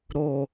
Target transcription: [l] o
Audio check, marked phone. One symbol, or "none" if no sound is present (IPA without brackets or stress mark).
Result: ɾ